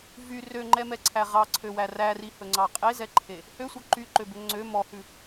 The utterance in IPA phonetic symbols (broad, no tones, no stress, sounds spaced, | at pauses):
v y r ø ŋ͡ǃ ɛ m ɛ ǀʰ æ ʁ ɑ ǀʰ ø w æ r æ r i h ɵ ŋ͡ǀ ɑ qʼ e z ɛ ǃʰ e | h ø sʷ œ ǃ y ǃ ø b ø ŋ͡ǀ ø m ɔ h ʉ